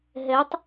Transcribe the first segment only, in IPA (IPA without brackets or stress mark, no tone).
ɦ